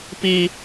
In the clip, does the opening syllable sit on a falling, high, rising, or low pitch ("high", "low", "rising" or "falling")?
high